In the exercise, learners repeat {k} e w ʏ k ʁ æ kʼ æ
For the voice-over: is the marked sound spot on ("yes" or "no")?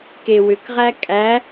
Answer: yes